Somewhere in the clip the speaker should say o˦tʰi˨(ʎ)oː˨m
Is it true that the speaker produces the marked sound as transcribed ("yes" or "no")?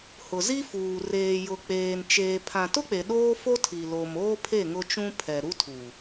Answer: no